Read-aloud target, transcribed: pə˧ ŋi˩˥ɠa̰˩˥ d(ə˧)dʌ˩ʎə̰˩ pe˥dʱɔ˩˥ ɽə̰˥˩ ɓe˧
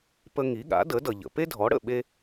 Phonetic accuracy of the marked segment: incorrect: ə˩˥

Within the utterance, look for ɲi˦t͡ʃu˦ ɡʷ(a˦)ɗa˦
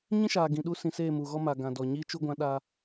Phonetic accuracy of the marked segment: incorrect: ã˦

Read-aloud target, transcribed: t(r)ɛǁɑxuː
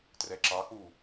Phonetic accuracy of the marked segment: correct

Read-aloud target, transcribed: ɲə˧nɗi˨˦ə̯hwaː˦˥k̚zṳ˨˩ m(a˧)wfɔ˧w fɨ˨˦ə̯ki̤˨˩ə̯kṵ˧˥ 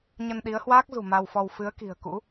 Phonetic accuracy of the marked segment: correct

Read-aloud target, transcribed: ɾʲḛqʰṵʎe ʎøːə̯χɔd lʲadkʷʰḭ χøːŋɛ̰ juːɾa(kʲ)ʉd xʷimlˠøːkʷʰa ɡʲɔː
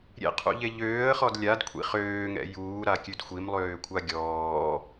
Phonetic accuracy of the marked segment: correct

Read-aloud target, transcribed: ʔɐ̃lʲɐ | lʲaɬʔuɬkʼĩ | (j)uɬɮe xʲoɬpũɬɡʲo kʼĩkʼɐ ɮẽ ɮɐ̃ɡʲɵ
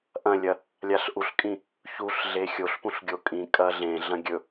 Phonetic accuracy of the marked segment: incorrect: ç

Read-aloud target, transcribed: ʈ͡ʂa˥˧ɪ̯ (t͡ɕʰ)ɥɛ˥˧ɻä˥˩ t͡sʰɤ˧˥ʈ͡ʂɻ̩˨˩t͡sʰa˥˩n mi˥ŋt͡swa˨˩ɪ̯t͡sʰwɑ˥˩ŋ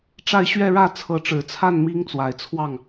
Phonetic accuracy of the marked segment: incorrect: ɕ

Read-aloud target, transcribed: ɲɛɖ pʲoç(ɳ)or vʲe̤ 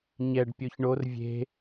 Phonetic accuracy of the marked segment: correct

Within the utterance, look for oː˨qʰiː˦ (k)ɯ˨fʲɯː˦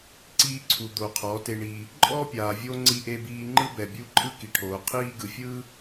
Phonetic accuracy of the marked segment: incorrect: ɡ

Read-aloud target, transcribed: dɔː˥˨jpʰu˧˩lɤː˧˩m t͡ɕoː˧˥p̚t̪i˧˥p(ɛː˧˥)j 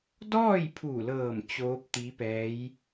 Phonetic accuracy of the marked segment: correct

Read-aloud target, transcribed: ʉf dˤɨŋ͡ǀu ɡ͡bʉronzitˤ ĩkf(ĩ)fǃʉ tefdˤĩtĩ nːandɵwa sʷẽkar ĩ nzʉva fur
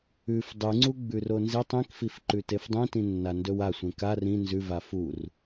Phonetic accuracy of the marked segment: incorrect: i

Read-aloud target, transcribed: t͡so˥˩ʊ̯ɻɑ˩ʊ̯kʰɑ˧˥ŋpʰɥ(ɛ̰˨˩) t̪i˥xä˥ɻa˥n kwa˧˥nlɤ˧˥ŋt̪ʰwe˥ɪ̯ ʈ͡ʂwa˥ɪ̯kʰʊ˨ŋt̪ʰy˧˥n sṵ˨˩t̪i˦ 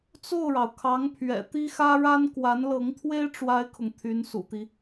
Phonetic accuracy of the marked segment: correct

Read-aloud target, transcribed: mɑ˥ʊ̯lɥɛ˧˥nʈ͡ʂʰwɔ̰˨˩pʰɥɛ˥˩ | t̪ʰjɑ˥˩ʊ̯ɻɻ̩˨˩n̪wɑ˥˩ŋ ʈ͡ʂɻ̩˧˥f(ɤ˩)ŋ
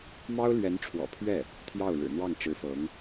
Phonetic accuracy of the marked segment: incorrect: ɤ˧˥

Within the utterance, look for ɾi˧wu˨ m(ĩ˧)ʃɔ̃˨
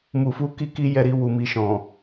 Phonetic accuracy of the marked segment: incorrect: i˧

